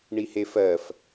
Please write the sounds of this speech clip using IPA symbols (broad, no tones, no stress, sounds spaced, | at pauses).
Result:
ɳ i h e f ɜ f